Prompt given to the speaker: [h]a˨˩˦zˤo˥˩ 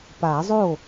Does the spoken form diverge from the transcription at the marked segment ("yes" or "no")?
yes